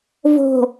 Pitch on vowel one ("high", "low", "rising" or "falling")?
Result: low